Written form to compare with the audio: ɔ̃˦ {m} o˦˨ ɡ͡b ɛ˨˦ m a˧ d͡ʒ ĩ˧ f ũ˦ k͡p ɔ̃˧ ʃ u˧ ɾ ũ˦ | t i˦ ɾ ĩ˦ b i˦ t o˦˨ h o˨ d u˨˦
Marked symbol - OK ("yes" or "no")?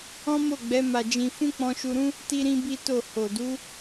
yes